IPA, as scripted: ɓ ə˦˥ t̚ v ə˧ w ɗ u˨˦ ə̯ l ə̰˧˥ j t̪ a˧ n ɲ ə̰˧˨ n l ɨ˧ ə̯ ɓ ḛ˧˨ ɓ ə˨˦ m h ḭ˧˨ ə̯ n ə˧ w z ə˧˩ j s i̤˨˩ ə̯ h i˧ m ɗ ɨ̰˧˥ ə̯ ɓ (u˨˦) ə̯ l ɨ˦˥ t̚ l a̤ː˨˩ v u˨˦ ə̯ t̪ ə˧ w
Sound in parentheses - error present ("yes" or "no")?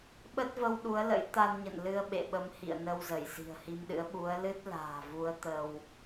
no